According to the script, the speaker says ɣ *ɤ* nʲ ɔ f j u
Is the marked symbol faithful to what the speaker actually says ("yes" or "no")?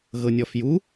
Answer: yes